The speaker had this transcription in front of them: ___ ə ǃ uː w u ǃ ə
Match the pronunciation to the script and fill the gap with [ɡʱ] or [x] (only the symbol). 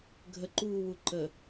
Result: ɡʱ